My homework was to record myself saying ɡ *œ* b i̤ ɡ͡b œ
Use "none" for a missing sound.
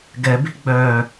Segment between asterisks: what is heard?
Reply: ɛ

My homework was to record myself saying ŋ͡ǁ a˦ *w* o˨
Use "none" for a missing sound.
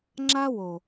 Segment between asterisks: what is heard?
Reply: w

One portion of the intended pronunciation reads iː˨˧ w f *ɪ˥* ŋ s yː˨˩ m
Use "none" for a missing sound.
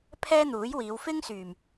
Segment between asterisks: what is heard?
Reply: ɪ˥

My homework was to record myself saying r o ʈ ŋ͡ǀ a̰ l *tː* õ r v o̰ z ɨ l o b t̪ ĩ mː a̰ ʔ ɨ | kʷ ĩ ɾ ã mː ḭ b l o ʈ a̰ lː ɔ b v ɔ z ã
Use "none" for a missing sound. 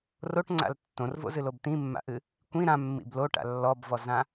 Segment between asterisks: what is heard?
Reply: tː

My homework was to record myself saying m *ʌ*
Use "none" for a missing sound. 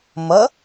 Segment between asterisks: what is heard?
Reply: ʌ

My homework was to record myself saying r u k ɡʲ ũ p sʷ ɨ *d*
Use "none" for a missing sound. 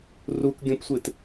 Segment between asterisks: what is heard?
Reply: t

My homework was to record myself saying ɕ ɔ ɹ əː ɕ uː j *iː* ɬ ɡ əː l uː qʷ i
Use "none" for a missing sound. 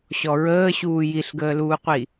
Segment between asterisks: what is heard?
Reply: i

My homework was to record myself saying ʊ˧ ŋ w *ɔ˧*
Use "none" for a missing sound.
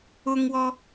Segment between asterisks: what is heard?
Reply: ɔ˧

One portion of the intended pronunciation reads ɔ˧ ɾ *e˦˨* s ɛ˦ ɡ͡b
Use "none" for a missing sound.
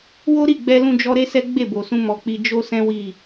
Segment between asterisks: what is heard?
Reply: e˦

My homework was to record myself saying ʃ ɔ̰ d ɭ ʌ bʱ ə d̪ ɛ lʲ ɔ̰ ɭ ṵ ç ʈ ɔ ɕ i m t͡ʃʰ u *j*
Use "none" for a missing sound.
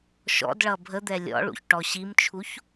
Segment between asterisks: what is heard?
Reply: ç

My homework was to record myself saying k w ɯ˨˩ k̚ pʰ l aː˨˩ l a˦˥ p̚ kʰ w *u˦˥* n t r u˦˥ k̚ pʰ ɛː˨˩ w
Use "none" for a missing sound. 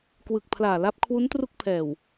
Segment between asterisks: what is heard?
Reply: u˦˥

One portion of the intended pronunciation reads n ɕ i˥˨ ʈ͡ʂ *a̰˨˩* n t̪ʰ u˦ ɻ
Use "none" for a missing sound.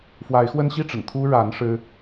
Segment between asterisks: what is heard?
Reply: ə̰˨˩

